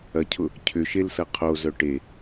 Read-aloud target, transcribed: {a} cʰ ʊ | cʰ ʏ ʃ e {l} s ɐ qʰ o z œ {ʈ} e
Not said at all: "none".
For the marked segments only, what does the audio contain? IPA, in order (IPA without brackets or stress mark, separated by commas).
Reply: ɐ, l, ʈ